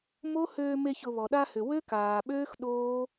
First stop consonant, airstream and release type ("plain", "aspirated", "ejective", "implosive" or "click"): implosive